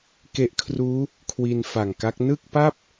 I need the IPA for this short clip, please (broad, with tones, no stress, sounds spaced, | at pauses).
k e˦˥ ʔ kʰ r uː˦˥ | kʰ w i˧ n f a˨˩ ŋ k a˦˥ k̚ n ɯ˥˩ k̚ p a˥˩ p̚